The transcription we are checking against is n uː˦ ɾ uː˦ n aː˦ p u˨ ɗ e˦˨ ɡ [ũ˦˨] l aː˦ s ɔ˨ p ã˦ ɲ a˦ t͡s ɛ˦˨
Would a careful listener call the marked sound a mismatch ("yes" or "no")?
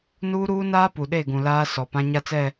yes